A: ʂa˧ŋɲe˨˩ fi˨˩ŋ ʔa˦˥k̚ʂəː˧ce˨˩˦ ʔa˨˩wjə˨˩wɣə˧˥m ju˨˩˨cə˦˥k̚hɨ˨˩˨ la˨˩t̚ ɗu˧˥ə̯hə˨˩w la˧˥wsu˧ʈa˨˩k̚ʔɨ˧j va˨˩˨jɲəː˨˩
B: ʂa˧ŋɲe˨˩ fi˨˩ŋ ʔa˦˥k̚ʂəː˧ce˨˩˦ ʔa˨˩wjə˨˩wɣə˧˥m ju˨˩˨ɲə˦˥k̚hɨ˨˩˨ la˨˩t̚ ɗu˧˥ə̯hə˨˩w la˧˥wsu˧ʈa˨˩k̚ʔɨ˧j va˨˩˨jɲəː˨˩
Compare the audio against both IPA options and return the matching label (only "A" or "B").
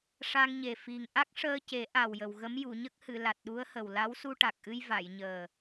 B